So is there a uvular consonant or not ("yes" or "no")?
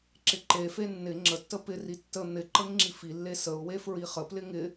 yes